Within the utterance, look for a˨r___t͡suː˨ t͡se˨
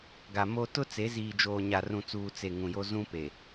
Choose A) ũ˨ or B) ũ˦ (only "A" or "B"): A